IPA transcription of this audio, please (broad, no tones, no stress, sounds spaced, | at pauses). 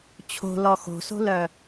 t͡ɕʰ o̤ l ɔ x o̤ s o̤ l œ